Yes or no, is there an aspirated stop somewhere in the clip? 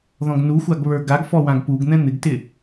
no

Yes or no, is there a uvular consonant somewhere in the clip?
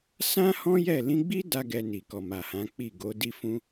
no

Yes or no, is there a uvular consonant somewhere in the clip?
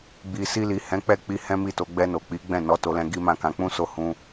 no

